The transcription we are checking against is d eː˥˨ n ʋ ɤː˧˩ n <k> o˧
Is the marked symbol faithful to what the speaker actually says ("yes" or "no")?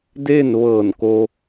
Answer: yes